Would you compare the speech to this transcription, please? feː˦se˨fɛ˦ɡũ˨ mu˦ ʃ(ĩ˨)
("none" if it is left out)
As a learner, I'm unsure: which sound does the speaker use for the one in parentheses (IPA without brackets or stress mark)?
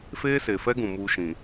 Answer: ĩ˨